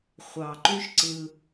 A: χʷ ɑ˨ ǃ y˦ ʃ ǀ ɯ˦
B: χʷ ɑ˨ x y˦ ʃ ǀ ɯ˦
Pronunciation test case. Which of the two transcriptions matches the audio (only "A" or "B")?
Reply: A